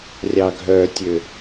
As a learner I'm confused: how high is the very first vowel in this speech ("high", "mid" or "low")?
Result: low